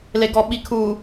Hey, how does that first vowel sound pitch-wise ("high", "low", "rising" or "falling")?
low